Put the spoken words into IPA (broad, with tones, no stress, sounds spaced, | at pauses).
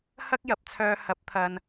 h ɐ˥ k̚ j ɐ˨ p̚ t͡sʰ œː˨ h ɐ˨˥ p̚ t̪ʰ ɐ˨ n